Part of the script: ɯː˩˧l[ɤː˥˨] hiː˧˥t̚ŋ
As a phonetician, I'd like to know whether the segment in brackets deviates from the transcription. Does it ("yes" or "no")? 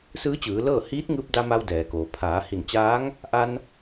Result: no